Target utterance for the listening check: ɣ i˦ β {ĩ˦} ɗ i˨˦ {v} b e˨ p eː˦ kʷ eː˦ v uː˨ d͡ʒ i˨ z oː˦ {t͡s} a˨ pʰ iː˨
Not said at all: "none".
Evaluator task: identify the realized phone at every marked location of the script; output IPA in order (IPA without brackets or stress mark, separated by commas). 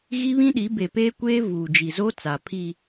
ĩ˦, none, t͡s